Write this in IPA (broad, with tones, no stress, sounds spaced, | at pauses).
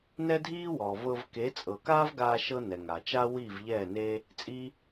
n ɛ˦ dʱ iː˦ w ɔː˨ v ɤ˧ v k e˨˦ t͡sʼ ɤ˨ k aː˦ v ɡ aː˧ ʃ ɤ˦ n ɛ˨ ŋ aː˨ t͡ʃ a˦ w iː˦˨ v ʎ ɛː˦˨ n e˦ | t͡sʼ i˦